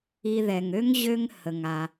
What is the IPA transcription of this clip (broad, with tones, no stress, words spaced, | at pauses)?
i˧ ðɛ˨ŋø˦ŋ ʑø˧ŋ hə˧ŋa˧